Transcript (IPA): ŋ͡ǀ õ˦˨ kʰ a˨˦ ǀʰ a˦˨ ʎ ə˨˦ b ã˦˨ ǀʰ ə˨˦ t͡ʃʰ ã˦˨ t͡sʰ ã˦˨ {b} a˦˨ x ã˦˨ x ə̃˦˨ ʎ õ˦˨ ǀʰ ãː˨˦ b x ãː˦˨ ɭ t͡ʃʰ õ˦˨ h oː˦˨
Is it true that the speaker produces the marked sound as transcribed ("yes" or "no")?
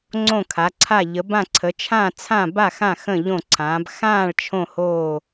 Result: yes